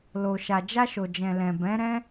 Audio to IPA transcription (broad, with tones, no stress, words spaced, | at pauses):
lo˨ ʃa˨d͡ʒa˧ʃo˨d͡ʒɛ̃˨ lɛ̃˨bɛ̃˨˦ɾɛ̃˦